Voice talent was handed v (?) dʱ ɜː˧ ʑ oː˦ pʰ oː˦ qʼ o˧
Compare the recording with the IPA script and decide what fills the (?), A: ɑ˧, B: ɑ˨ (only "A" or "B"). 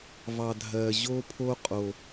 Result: A